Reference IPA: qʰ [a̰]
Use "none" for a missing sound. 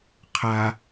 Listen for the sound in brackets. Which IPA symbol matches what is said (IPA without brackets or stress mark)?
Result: a